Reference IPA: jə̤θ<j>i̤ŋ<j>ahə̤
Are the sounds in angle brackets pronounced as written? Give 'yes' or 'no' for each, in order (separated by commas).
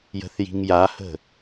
yes, yes